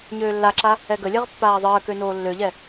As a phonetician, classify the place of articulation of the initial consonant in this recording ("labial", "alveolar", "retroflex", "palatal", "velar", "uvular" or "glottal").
palatal